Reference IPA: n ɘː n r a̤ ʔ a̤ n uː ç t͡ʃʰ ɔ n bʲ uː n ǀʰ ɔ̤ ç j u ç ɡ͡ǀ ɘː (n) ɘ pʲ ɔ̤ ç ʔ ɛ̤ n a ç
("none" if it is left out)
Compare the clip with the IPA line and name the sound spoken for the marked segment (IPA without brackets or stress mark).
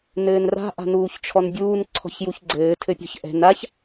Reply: tʰ